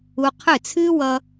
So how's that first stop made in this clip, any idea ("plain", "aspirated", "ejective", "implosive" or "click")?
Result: aspirated